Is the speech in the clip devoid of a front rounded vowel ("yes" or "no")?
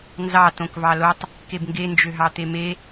no